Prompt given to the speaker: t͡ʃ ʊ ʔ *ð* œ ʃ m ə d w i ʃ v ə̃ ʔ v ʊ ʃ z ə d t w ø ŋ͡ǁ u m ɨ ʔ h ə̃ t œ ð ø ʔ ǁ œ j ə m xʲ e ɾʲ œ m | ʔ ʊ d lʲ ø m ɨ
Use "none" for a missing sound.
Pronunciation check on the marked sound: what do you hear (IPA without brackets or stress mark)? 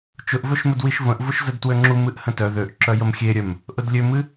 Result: v